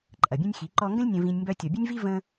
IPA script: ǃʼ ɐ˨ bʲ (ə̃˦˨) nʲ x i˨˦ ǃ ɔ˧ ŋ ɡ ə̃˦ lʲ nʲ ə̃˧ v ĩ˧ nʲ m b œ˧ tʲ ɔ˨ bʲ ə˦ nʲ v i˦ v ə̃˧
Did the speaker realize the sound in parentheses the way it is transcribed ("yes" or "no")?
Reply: no